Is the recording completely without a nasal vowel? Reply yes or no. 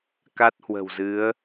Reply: yes